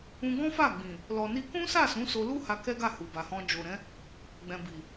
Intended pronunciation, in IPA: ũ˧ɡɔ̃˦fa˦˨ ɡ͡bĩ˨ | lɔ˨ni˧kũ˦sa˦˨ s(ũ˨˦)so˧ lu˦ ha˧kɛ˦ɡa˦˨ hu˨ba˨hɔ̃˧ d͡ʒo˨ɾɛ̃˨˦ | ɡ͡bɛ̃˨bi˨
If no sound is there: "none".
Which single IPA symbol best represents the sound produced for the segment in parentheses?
ũ˨˦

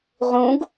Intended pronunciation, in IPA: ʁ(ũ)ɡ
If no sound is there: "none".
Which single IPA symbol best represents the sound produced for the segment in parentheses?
ũ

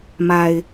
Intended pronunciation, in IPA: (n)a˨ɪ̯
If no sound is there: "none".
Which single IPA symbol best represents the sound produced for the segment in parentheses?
m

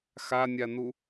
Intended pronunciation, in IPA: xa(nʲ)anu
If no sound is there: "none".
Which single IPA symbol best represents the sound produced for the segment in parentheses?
nʲ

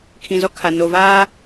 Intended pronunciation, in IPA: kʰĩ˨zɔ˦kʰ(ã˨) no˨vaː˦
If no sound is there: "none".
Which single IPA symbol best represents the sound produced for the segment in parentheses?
a˨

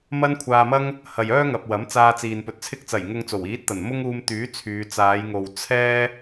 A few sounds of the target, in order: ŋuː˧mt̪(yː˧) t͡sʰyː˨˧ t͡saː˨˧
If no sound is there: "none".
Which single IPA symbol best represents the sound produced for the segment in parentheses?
yː˨˥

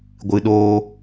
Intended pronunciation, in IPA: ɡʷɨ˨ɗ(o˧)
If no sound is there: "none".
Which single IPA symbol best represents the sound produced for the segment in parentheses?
oː˧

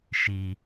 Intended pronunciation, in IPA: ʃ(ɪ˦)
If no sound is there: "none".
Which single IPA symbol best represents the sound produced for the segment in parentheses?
i˦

